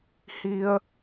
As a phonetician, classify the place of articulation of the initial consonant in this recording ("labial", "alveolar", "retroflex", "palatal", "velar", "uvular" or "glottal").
glottal